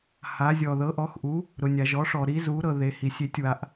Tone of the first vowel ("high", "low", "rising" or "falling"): rising